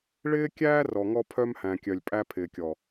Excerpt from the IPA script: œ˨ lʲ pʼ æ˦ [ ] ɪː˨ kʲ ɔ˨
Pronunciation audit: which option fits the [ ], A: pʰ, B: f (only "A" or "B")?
A